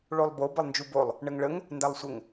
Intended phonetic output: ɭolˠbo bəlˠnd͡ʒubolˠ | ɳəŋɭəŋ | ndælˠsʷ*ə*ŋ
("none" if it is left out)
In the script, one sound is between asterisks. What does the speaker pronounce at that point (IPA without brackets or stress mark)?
ə